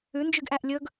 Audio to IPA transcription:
ʉ n d͡ʒ y ɡ ʔ æ ʔ lʲ ɵ ɡ

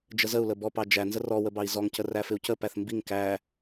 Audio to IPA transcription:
d͡ʒ ə z ə u̯ l ə b ɔ p ɑ d͡ʒ æ n z ə r ɔ w ə b ɑ i̯ z ɔ ŋ c ə r æ f ɪ u̯ c ə p æ θ m b i ŋ k æ

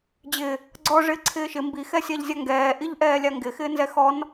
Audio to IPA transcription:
d͡ʑ ɪ | ɡ͡ǀ ɔ ʐ ɪː ǀʰ ɪː ʃ ɪ m b i x ɛ sʲ a ʎ zʲ a ŋ ɡ ɛː ʔ i ʎ ʔ ɛː lʲ a ŋ ɡ ɪ x ɪː n z ɛ x ɔ n

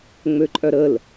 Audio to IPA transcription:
ŋ͡m ø ǃʼ œ ɾ ə l

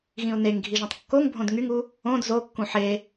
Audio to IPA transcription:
ɣ ĩ ʊ̯ n e ŋ ɡʱ i ʒ õ tˤ kː o ŋ bʱ õ d ŋ y ŋ u | õ d z o kː ũ ħ e

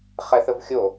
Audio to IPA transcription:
χ ɛ θ ə v xʲ o

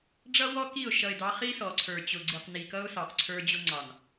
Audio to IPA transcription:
ɖ͡ʐ ʌ˦ w ɔ˦ k i˦˨ ʊ̯ ʃ ʌ˨ ɪ̯ d ɑ˨˦ χ i˦ s ɔ˨ ǀʰ ə˞˨ t͡ɕ ʊ˨ ɡ͡ǀ i˨ q n i˨ k ʌ˦ ʊ̯ s ɑ˨ q ǀʰ ə˞˦ d͡ʑ ʊ˦ ŋ͡ǀ ɑ˨ n

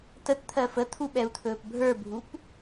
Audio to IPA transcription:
t ə t t̪ʰ ɜ f ə t̪ʰ u ɓ ɛ u̯ t̪ʰ ɵː p bʱ ə˞ bʱ u p

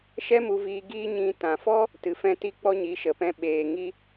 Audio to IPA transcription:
ʃ ɛ˦ m u˧ v iː˧ ɡ iː˦ ɲ ĩ˧ t ã˨ f ɔ˦ | t ɨ˨ f ɛ̃˧ t i˧ k͡p ɔ˦ ɲ i˨˦ ʃ ə˨ p ɛ̃˧ ɓ eː˨ ŋ i˧

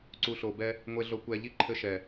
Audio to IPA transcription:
ǀ u˨ ɬ o˨ b ɛ˦ | ŋʷ e˨ ɮ o˨ kʷ ɛ˨ ʎ i˦ ǃʰ ɘ˦ ʃ ɛ˨

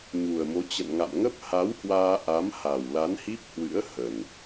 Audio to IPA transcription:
ɲ u˨˩ ə̯ m o˨˦ t͡ɕ ə̰˧˨ n ŋ a̰˧˨ m ŋ ə˦˥ p̚ h a˨˦ w h w aː˧ ʔ a˨˦ m h a˨˩ w l a˨˦ n h i˦˥ p̚ h w ɨ̰˧˥ ə̯ h ə˨˩ n

